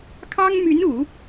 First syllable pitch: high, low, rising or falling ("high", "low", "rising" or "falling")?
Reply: high